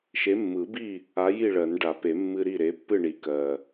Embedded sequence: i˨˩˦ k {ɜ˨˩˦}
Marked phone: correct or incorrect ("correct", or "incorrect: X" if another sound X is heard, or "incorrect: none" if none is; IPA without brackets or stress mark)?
incorrect: ɜ˨˩